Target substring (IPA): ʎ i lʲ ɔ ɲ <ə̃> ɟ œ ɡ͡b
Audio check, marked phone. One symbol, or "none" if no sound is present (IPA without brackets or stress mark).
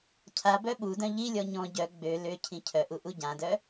ɔ̃